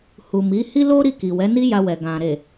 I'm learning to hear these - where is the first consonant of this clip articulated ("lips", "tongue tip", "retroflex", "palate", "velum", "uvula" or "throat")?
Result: throat